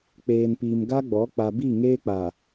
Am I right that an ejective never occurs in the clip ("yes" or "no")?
yes